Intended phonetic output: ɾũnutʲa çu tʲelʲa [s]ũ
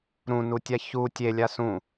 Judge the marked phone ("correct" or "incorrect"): correct